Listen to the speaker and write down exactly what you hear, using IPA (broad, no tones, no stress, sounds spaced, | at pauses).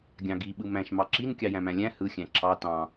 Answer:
ɡʲ ɑ̃ ɡ i ɓ ɯ m æ̃ ʃ m ɑ ǁ i n kʲ ɑ j æ̃ m æ̃ lʲ æ̃ h ɯ xʲ æ̃ ǁʰ ɑ t ɑ̃